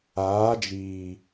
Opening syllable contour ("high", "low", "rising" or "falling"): rising